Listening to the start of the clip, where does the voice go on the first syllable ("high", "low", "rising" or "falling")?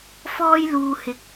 high